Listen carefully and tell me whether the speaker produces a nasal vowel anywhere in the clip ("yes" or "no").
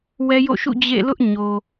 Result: no